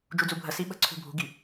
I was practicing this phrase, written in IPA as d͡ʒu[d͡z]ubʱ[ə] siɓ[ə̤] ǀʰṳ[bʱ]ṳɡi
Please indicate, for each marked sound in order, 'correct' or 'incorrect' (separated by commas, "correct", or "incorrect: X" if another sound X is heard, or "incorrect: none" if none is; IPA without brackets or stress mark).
correct, correct, correct, correct